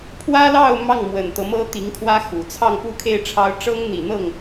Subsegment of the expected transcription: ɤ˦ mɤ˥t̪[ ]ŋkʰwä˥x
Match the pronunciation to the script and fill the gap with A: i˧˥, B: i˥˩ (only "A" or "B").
A